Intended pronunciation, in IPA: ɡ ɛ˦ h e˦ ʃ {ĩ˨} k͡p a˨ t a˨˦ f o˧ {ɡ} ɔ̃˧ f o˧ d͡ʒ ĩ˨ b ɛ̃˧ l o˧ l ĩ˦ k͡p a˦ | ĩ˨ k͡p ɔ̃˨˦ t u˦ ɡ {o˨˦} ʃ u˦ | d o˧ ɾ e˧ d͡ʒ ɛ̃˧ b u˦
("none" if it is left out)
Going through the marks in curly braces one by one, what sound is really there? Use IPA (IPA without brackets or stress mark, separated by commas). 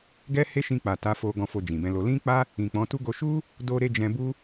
ĩ˧, ɡ, o˧